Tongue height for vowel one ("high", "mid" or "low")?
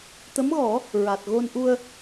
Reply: mid